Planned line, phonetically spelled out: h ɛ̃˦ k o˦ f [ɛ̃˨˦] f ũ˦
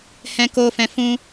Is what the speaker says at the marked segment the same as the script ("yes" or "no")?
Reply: no